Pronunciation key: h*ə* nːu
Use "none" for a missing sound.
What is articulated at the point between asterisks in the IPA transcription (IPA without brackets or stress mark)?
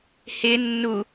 ɪ